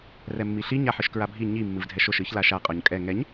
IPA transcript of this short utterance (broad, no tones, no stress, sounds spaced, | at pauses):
r ɛ mː i ɬ i ɲ a ħ ɨ ʃ k ɹ a bʱ i ɲ i mː ɨ v dʱ ɛ ʃ o ʃ ɨ ç l a ʃ a qʼ ɔ ɲ kʼ ɛ ŋ ɛ ɲ